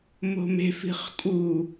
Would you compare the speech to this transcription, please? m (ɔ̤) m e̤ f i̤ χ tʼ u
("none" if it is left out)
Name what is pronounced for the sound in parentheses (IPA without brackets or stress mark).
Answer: o̤